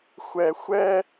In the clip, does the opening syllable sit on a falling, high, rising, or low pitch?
low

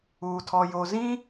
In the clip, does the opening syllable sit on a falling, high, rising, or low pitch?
low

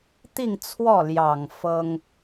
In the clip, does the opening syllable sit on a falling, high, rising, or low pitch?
falling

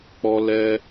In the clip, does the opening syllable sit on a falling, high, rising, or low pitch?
high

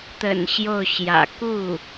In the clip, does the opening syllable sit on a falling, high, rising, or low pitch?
low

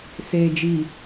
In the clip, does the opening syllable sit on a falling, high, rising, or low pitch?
low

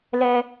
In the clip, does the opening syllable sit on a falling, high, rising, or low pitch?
high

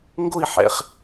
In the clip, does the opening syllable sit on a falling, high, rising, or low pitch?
falling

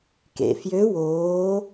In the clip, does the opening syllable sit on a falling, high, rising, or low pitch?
low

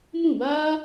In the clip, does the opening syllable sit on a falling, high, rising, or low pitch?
falling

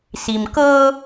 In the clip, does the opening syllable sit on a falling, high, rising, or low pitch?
low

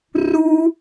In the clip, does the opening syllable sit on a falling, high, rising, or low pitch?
high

